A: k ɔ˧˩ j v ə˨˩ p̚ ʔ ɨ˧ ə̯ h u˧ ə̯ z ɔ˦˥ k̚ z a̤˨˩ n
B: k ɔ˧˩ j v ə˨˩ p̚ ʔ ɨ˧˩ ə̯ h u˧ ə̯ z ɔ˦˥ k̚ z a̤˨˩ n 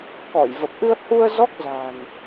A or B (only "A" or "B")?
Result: A